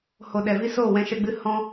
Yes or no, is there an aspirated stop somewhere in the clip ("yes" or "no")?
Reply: no